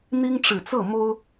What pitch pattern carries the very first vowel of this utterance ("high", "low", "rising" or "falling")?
high